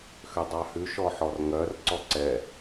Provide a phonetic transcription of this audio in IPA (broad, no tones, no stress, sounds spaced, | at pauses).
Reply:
x ø dˤ ɑ h ʉ ʃ ɔ ħ ɔ r ŋ œ r ǀ ɔ ǀ ɛ